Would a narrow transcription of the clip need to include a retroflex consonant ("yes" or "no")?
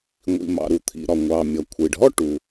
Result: yes